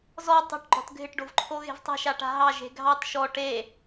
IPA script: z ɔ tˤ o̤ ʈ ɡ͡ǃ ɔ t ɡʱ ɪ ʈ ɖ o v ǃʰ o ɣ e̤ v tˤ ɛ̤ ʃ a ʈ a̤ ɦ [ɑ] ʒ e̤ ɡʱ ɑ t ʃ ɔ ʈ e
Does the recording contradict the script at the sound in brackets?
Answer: no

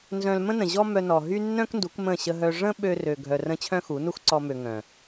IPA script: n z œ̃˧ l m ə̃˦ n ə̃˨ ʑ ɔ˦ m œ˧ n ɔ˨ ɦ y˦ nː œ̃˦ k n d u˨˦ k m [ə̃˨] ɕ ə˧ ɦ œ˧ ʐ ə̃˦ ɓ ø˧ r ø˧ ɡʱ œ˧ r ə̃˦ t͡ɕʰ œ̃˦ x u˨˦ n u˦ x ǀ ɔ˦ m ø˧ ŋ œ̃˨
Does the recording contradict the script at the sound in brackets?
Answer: yes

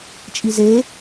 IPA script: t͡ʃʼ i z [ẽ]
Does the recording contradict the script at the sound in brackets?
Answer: yes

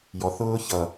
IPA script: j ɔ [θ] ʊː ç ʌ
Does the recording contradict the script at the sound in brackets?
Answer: no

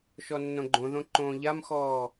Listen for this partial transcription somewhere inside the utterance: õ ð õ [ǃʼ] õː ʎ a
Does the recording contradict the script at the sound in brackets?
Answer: yes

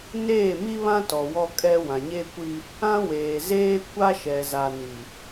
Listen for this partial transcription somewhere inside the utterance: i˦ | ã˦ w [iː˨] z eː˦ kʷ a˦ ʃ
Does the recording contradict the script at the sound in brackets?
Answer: yes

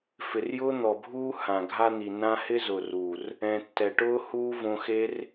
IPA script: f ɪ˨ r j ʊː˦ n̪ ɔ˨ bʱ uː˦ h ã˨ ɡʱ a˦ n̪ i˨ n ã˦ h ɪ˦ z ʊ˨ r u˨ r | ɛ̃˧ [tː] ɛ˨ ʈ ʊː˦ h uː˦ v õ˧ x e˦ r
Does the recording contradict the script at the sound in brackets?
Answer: no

